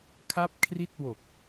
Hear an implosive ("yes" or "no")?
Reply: no